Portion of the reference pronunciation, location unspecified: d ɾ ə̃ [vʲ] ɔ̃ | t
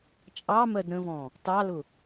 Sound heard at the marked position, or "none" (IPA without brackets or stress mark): v